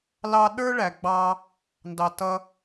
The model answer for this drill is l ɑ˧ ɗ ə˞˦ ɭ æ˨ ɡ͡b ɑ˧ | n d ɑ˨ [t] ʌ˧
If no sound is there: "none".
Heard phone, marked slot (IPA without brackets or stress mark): t